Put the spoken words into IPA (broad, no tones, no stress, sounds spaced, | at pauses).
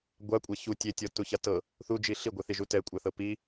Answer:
ɡʷ a kʷʼ a ç u tʲ e tʲ ɔ t u ç a t ɤ | θ u d͡ʒ i ɬ i ɡʷ e θ i ʒ u t ɛ kʷʼ a θ ɤ p i